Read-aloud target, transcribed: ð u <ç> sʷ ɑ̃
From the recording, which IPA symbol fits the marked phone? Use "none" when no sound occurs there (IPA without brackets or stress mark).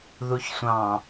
ç